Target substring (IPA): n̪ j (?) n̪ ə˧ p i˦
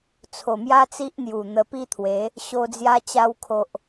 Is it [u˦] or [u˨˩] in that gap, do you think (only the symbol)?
u˨˩